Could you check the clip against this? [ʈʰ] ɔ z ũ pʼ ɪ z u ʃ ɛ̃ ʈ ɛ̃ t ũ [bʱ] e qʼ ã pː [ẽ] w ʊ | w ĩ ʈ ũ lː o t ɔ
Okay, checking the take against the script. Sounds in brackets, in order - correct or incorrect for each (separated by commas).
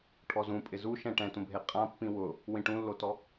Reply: correct, correct, incorrect